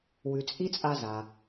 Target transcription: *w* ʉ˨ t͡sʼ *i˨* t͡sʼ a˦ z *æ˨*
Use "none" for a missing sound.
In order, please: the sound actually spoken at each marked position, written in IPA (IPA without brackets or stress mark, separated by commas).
w, i˥, a˨